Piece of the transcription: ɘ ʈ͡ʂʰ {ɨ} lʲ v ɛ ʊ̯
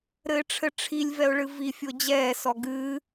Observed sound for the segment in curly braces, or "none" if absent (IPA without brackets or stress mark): i